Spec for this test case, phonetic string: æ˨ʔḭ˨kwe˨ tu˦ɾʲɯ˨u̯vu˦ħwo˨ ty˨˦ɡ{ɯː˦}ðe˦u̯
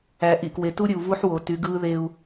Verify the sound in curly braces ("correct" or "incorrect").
correct